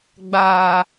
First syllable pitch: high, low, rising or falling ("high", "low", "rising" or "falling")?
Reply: low